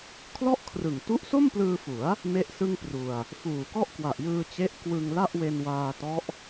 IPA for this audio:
kʰlɔ˥˩ʔkʰrɯ˨˩ŋ tu˦˥ʔso˥˩mplɯː˧fu˩˦a̯ | me˥˩ʔsɯ˥˩ŋpru˧a̯ | fuː˨˩kɔ˥˩ʔkwa˨˩ʔjɯː˧ t͡ɕe˦˥ʔkwɯ˧ŋla˥˩ʔ we˧nwaː˧tɔ˦˥ʔ

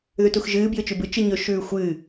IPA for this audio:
ðʉtuxʒɨː bjɨt͡ʃʉbɨ t͡ʃɨɲɵ ʃʉːxʷɨ

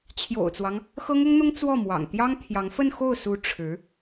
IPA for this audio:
t͡ɕʰjo̰˨˩ʊ̯t͡swɑ˦ŋ | xɤ˥ŋʊ˥ŋn̪ʊ˥ŋ t͡swɔ˥˩mwɑ̰˨˩ŋ t̪jɑ˥ŋt̪ʰjɑ˧˥ŋ fə˥˧nxo˥˩ʊ̯su˧˥ ʈ͡ʂʰɻ̩˧˥

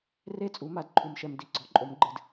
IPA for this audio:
re˥˨t͡sʼu˩˥ma˩˥d ǃʰu˨mʃɛ˨m di˩˥ɡ͡ǀɔ˩˥ǃʼo˩˥mɡ͡ǃɨ˨d

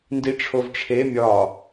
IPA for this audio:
ndiʈ͡ʂʰovʈ͡ʂʰe mʲɒ

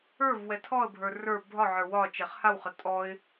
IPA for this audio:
ə˞v wɛtʰɔə̯bʱə˞ rə˞ bʱɒʕə˞ wɒ t͡ʃɛχhawχə tʼɔɪ̯

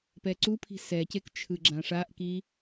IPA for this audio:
pɛǀupʰi̤ sɛcek t͡ʃʰɯɡ͡ǁãʂaʔki

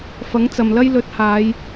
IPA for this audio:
fɐ˨˥ŋt͡sɐ˨mlɐ˥j lɵ˨˥t̚haː˨˧j

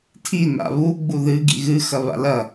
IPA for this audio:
tʰi na̰βu ɡ͡buðɨ ɡḭɣɨ xɐβa̰lɐ

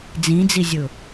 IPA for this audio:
d͡zĩd͡zizʲʊ

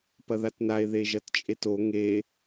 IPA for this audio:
pɐðatnae̯ ðeʒɐtt͡ʃʼeto ŋe

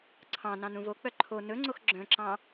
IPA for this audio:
ǀʰɑ̃ nɑ̃nũvok͡pœ ǃʰo nɵŋ͡ǀox ɡ͡ǁœ̃ǁɑ̃

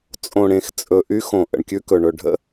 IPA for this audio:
t͡sʼõ˨ɽẽ˨xt͡sʼɵ˨ ʔy˦xõ˨ ʔə̰˨ɳkʲʉ˦kɵ˨ ɳɵ˨ɖʱə̰˦˨

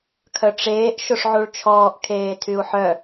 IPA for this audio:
kʰœʈ͡ʂeːʔ ʃoʂʕuɭt͡ʃʰɔːʔ kʰeːtʰyu̯ħœ

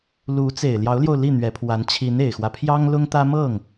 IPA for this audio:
lu˧˥ t͡se˨˩ɪ̯ljɑ˧˥ʊ̯ljo˧ʊ̯ li˥˩n̪ɥɛ˧˥pʰwa˧˥n t͡ɕʰi˧˥ne˨˩ɪ̯xwä˦ pʰjɑ˥ŋlʊ˥ŋt̪ä˥ mɤ˥˩ŋ

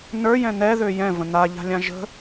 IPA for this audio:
nə˞jɛ̃ n̪ɛðø jɛ̃və̃ n̪aʎa̤lʲã ʒə̤

